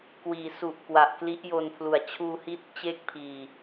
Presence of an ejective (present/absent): absent